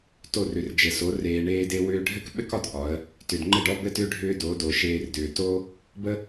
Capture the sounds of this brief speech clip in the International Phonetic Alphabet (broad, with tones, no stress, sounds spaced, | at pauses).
t o˦˨ r ʏ˨ r d͡ʒ ɘ˨ s o˨˦ r eː˧ ɳ eː˦ d e˦ w ʏː˧ ɖʱ ɘ˦ k ɓ ɘ˦ k ɒ˧ d ʔ ɒ˨˦ ə̯ | t ʏ˨ d ŋ͡ǃ ɘ˦˨ ɖ ɔ˦ b ɘ˦ t ʏː˦ ɖʱ ʏː˦ d o˨˦ d o˨ ʃ eː˧ r d ʏː˨ t o˦ | b ə˦